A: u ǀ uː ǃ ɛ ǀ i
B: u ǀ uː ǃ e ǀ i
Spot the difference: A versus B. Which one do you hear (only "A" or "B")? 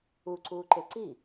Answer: B